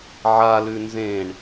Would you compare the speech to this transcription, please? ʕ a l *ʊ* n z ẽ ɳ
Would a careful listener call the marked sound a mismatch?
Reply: yes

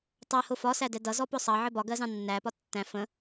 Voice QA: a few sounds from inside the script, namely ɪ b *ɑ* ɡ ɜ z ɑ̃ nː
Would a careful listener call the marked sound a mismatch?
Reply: yes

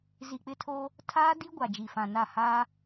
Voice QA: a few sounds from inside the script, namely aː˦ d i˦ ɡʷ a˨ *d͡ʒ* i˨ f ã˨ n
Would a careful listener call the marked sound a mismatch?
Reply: no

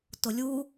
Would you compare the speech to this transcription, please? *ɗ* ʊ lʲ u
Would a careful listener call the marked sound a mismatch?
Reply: yes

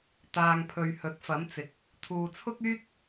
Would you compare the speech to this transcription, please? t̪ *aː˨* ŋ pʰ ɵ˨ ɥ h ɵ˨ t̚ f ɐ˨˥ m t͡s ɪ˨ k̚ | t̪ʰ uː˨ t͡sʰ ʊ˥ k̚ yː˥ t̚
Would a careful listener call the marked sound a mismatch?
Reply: no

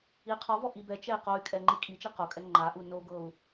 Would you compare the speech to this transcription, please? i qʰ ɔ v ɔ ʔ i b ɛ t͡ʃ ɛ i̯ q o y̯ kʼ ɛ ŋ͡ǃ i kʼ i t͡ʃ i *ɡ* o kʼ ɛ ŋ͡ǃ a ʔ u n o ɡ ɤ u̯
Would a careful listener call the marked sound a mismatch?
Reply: yes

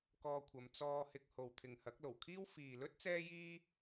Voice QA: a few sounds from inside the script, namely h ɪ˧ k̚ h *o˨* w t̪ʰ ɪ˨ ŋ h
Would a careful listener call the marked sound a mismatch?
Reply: no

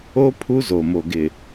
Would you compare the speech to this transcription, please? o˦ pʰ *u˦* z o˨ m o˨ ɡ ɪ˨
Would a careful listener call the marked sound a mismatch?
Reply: no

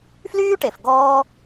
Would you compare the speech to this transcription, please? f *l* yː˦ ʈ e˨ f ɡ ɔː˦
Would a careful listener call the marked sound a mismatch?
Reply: no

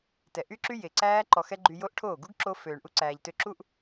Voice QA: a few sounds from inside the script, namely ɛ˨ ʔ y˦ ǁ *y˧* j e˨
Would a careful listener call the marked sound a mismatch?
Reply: yes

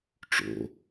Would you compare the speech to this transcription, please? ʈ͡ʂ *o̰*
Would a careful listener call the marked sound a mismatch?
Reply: no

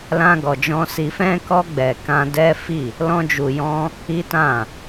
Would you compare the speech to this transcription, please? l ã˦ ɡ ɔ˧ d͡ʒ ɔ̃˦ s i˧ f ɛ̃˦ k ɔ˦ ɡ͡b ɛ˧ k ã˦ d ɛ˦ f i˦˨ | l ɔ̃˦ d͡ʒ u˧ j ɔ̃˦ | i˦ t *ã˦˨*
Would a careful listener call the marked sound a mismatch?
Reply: no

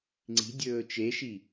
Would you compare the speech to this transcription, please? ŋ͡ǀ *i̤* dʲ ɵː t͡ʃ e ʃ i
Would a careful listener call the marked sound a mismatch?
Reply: no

